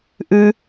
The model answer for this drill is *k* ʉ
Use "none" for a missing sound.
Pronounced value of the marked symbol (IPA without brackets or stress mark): ʔ